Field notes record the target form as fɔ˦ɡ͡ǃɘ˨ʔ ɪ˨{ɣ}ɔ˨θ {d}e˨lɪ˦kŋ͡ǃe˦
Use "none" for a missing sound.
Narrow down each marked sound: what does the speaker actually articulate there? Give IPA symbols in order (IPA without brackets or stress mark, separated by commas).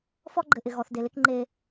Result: ɣ, d